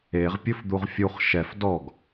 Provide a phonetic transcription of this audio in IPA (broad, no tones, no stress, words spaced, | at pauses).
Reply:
eʁ pʲɵfd̪uʁfʲuχ ʃɛf dɔɡ